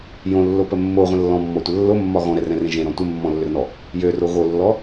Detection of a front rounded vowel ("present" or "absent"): present